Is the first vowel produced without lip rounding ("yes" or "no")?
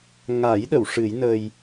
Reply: yes